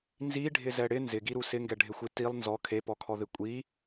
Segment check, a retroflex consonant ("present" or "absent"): present